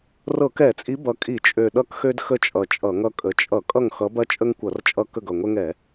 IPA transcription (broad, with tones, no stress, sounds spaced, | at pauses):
r ɤ˧˩˧ k ɛ˧˩˧ t͡sʼ i˨˦ b ʌ˨˩ kʼ i˧˩˧ t͡ʃʼ ø˨˩ ɗ ʌ˦ k x ø˦ d x ə˦˨ t͡ʃʼ ʌ˨˩ t͡ʃʼ ʌ˧˩˧ ŋ ʌ˦ kʼ ə˨˦ t͡ʃʼ ʌ˧˩˧ kʼ ʌ˦˨ ŋ x ʌ˨˦ b ɐ˦ t͡ʃʼ ə˦ ŋ kʷ ʌ˧˩˧ r t͡ʃʼ ʌ˦˨ k ə˦˨ ɡ ʌ˨˩ ŋʷ ɛ˦ ŋ ɛ˧˩˧